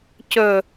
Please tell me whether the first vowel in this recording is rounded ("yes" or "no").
yes